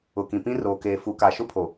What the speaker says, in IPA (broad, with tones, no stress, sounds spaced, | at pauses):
ʊ˨ k ĩ˨ p ĩ˦ r oː˨ k eː˨ f u˨ k a˨ ʃ ʊ˦ pʰ o˨